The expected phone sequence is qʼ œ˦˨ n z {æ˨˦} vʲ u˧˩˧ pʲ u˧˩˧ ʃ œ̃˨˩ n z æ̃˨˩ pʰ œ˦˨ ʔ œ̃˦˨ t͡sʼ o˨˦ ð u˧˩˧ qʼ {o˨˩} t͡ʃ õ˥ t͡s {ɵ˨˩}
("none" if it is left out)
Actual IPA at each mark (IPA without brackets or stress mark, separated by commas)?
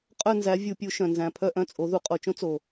æ˨˦, o˨˩, o˨˩